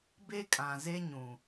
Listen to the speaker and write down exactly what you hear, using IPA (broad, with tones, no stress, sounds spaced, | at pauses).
b e˦ kʼ ã˨ z e˦ ɲ ũ˨